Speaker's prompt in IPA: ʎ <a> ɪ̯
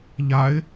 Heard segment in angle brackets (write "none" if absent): a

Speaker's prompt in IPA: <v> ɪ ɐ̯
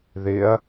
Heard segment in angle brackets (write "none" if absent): ð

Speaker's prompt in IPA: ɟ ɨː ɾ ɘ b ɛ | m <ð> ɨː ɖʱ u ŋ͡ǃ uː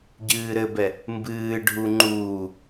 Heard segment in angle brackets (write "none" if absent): b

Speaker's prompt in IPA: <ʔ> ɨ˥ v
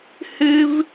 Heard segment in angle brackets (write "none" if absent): h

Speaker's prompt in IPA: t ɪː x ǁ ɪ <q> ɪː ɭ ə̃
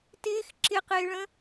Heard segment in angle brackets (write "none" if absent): q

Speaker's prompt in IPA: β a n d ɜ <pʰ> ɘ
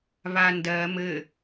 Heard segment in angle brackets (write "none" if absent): m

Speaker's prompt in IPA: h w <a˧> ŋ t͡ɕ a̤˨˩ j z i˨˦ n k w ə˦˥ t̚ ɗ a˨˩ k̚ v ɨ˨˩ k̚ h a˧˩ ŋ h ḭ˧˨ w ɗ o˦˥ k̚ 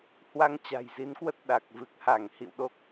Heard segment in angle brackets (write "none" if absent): a˧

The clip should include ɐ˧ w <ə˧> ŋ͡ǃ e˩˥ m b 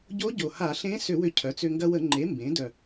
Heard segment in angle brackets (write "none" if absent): ə˧˩˧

